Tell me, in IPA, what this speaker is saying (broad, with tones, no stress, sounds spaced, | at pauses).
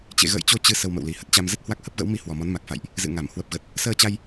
t͡ɕ ḛ˧˨ ɣ ə̰ː˧˨ j t͡ɕ o˧ t͡ɕ ɨ˧ s ə˧ w m ə̰˧˨ w l i˨˩ h ə˦˥ t̚ t͡ɕ a˧ m z ə˦˥ t̚ h w a˦˥ k̚ h ə˦˥ p̚ ɣ ə̰˧˥ w m i˧ h w ɔ˨˩ m ɔ˨˦ n m a˨˩ k̚ f a̰˧˨ j ʔ | z ɨ̰˧˨ ŋ a˧˩ m h w ə˨˩ p̚ ɣ ə˨˩ t̚ | s əː˧ t͡ɕ a˧ j